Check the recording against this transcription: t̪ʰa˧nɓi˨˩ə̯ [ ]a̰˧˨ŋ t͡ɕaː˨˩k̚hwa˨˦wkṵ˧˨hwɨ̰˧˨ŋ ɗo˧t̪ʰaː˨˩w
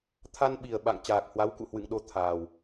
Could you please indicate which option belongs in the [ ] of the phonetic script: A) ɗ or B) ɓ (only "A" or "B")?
B